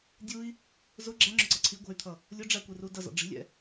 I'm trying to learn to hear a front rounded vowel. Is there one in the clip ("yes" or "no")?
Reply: yes